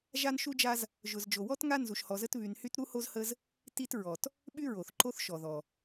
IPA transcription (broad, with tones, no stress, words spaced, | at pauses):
ʒa˥nʃu˥d͡ʒa˥z | ʒʊ˨z d͡ʒo˨wɔ˥t ŋa˦ nzu˨ʃhɔ˨zə˦t βy˨nhy˦t ɾu˥ho˥z hə˦z | ti˦t ɹɔ˩t | ɓy˦ɹo˩θ ǃo˦θʃɔ˩ðɔ˩